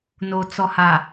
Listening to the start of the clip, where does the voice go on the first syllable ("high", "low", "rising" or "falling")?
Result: low